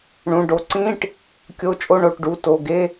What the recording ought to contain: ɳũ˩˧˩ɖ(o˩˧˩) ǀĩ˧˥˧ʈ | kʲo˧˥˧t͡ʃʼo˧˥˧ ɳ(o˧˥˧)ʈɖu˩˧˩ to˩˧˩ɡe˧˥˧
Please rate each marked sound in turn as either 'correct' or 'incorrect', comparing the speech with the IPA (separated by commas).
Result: correct, incorrect